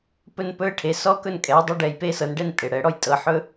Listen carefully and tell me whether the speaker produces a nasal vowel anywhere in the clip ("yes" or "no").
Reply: no